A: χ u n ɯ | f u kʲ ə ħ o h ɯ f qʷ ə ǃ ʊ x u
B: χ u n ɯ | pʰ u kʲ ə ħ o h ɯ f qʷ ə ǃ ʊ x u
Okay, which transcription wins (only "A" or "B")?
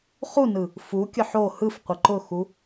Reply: A